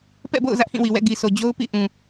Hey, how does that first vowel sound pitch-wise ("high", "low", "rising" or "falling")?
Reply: falling